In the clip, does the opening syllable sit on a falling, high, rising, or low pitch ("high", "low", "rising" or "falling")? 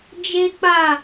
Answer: high